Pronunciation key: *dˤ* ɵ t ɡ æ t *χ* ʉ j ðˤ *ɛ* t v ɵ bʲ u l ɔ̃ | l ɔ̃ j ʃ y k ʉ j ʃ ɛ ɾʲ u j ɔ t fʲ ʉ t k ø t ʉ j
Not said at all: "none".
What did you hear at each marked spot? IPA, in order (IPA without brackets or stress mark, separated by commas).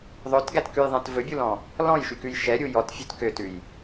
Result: ðˤ, k, ɛ̃